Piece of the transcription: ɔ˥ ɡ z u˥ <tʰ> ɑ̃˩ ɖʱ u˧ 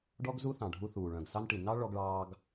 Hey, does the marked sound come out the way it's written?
no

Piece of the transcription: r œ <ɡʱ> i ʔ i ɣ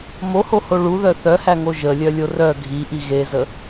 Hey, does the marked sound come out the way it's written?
yes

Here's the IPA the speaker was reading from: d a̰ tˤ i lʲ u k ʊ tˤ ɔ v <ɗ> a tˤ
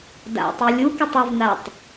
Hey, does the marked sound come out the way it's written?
no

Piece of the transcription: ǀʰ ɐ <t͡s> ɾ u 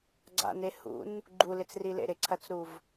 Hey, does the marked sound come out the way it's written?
yes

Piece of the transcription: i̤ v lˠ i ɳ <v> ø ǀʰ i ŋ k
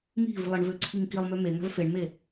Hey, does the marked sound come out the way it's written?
yes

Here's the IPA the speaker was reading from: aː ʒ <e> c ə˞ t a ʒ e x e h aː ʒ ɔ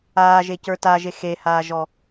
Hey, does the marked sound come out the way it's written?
yes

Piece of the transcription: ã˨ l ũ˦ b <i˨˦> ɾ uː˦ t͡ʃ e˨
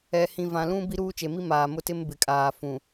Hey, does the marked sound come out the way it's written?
no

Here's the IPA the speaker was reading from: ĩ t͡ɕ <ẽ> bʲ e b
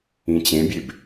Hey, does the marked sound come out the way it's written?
yes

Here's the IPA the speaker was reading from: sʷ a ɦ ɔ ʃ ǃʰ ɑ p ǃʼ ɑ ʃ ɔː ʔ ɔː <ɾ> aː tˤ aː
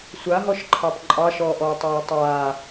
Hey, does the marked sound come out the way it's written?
no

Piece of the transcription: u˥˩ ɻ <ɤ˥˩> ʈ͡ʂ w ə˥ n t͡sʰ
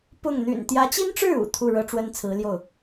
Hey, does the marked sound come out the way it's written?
no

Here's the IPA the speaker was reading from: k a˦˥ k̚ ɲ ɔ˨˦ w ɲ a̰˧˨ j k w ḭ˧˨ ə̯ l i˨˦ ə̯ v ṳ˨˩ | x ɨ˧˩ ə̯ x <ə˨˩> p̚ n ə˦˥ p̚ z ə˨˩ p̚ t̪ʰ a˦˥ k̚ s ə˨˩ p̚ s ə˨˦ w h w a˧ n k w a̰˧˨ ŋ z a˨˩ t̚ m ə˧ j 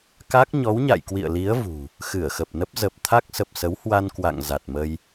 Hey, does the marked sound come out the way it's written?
yes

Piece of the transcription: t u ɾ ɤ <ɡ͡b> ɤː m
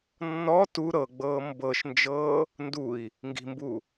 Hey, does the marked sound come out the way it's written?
yes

